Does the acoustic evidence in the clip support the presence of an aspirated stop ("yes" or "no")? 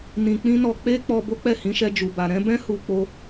no